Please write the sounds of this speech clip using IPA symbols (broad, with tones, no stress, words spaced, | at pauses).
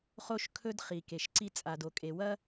χo˥ʃ kʰɵ˥d χi˩ke˩ʃ ǀi˥ t͡sʼa˩do˩kʼe˩wɐ˥